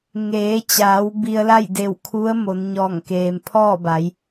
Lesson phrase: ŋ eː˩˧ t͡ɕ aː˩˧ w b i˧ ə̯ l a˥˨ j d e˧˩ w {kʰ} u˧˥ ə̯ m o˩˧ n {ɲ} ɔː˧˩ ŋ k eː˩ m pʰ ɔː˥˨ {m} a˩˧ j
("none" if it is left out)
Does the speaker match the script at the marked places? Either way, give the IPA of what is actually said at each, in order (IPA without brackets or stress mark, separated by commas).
kʰ, ɲ, b